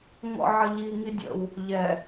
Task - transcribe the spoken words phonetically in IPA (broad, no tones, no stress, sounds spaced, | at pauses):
ŋ ɔ̰ ʕ ə ʎ i ŋ i dʲ ə̰ w | ʎ ɛ